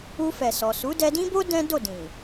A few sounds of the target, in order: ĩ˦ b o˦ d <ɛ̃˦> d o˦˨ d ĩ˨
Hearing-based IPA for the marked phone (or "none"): ɛ̃˦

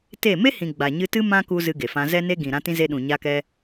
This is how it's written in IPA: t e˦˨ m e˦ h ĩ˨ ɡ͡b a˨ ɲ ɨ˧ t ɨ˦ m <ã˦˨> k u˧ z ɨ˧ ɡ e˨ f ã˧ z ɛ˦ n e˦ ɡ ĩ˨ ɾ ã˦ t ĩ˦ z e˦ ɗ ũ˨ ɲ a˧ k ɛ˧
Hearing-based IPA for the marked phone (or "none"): ã˦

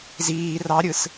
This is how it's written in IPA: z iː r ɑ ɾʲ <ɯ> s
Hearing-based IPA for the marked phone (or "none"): ɯ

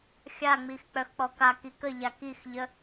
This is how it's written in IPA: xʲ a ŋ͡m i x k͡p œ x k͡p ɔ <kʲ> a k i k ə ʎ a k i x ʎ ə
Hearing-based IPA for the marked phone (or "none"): k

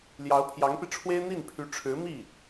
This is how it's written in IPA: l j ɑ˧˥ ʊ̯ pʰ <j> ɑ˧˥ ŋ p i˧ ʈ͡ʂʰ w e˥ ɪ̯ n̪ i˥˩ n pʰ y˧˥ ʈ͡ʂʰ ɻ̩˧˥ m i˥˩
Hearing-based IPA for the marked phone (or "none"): j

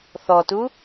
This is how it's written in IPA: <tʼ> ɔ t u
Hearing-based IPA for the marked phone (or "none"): θ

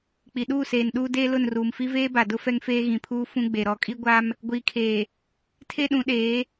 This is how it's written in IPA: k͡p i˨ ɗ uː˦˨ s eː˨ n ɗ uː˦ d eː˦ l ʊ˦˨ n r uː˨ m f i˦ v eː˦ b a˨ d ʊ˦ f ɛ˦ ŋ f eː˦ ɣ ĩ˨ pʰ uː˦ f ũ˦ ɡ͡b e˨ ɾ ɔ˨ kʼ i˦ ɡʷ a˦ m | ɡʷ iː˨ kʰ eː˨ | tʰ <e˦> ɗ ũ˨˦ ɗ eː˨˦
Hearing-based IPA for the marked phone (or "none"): e˦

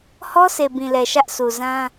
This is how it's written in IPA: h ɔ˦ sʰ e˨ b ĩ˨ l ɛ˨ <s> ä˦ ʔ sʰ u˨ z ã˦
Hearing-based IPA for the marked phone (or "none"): ʃ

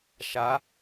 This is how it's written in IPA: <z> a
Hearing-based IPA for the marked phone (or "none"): ʃ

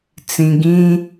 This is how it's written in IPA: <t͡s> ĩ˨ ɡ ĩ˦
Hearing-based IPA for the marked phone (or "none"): t͡s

